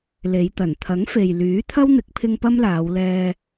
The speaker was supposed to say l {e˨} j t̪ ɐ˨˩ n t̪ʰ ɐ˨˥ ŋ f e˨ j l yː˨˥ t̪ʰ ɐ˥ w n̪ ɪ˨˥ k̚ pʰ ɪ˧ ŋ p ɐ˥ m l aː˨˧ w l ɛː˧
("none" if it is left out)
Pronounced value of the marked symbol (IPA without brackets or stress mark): e˨˧